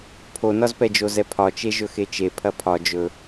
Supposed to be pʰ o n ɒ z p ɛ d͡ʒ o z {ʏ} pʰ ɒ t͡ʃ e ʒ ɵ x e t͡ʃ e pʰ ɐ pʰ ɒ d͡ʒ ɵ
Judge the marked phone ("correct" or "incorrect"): incorrect